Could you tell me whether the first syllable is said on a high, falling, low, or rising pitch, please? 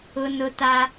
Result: high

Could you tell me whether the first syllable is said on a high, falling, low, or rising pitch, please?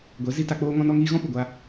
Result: rising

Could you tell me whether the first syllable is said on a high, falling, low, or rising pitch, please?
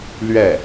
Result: falling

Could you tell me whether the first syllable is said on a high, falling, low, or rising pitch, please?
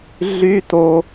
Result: high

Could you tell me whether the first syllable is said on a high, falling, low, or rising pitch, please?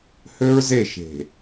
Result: high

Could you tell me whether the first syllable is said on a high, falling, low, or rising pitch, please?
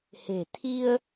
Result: low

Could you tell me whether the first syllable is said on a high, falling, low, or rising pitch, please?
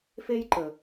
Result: high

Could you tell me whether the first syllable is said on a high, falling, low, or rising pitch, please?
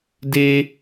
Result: high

